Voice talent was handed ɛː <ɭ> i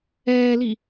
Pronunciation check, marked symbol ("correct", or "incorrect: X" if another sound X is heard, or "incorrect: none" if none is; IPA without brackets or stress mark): incorrect: l